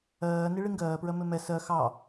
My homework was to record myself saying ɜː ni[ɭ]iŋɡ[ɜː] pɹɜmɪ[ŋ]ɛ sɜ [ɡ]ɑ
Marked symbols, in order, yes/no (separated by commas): yes, yes, no, no